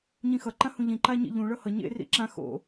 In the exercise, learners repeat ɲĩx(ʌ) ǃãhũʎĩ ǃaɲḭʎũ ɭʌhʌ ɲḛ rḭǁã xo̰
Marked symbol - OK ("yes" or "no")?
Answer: yes